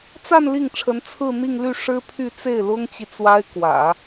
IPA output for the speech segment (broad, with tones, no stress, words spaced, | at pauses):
t͡sa˥˧n li˥˩ŋʈ͡ʂʰə˧˥n t͡sʰɹ̩˥˧n̪i˥˧ŋly˥˩ ʂɻ̩˥pʰy˥˧ t͡se˥˩ɪ̯lʊ˥ŋt͡ɕi˨ t͡swa˥ɪ̯kwä̰˨˩˦